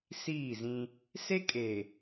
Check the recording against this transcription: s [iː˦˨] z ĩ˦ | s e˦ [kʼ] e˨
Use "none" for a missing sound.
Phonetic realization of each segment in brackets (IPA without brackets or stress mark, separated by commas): iː˦˨, kʼ